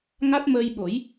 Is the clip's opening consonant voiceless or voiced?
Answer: voiced